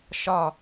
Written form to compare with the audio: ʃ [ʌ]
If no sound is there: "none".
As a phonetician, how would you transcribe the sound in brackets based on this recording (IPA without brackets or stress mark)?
ɒ